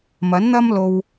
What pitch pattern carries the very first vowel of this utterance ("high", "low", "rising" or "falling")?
rising